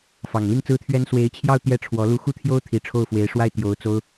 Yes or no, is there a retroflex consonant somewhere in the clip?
yes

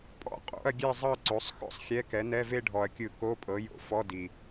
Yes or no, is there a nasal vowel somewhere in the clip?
no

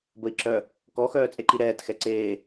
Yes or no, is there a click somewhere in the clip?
yes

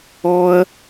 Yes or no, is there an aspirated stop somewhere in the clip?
no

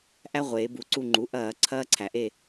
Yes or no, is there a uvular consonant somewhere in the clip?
yes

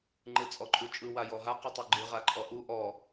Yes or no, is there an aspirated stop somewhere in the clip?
no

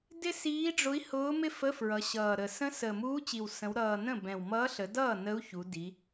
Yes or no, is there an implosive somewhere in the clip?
no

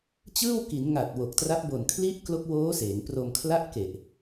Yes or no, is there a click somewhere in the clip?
no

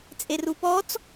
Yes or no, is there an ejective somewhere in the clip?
yes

